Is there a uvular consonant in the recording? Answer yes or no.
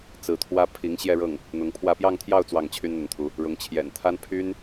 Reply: no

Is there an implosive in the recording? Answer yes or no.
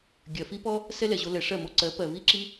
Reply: no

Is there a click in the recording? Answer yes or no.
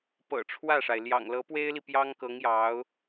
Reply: no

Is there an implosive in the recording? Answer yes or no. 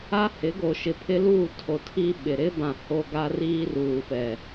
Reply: yes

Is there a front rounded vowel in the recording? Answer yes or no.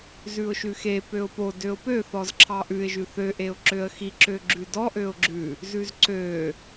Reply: yes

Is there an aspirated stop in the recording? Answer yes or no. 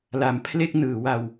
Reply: yes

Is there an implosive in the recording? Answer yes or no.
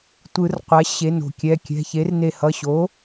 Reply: no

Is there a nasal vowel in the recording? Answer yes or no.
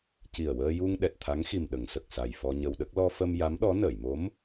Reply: no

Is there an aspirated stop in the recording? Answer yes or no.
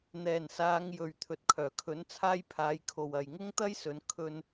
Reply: yes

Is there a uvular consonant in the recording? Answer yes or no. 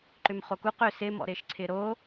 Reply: yes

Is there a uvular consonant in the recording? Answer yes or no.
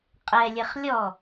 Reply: yes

